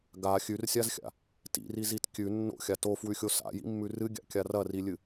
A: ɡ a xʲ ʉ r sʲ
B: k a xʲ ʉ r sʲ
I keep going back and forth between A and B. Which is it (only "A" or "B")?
A